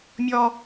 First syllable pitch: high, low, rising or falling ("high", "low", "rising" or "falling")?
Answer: high